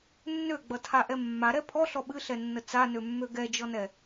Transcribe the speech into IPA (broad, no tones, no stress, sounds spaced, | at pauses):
nː ø ɡ͡b ʌ tʰ a ʔ ɛ mː a ɾ ɛ pʰ ɔ ɬ ɔ ɓ ɨ ɬ ɛ nː ə t͡s a n ø mː ø ɡ ɛ d͡ʒ ɔ n ɛ